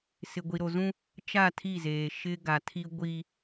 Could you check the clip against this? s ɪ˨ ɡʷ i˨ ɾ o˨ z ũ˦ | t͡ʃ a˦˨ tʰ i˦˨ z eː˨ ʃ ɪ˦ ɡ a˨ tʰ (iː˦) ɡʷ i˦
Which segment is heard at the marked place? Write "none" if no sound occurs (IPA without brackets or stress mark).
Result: i˦